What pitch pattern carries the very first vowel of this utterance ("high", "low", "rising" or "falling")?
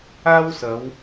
high